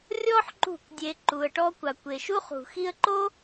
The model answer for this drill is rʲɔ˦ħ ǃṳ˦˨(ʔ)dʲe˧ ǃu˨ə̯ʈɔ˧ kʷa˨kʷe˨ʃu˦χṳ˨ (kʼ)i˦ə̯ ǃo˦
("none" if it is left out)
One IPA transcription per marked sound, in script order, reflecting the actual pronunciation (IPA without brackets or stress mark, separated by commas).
k, x